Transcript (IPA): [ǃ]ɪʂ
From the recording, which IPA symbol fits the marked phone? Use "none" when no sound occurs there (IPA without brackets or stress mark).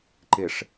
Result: ǃ